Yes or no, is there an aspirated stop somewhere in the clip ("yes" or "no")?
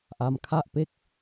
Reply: yes